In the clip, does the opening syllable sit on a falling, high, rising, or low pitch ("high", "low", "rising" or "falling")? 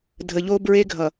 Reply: low